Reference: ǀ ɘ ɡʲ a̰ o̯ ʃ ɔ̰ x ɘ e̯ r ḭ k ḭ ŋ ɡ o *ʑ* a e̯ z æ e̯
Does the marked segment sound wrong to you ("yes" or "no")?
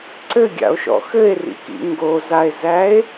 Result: yes